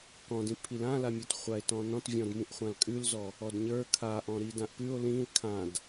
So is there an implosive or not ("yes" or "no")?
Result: no